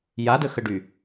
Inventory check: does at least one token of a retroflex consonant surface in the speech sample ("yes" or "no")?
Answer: yes